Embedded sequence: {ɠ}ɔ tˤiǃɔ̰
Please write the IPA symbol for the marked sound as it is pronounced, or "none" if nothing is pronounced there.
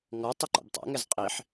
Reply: ŋ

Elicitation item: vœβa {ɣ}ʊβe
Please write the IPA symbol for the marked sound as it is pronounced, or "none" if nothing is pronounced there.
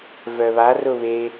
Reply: r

